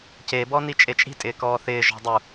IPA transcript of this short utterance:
c e b ɔ n i t͡ʃʼ e t͡ʃʼ i̤ tʼ ɪː k ɔː θ ɪː ʒ ɔ̤ dˤ u

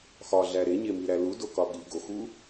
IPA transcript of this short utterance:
x ɒ ɮ æ ɾ e ɲ e m i ɾ æ l u d o k ɒ ɠ i ɡ o x u

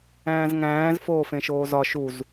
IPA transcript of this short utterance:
æ̃ː z ŋ æ̃ː z f oː f ẽ ʃ oː z ɒ ʃ u z

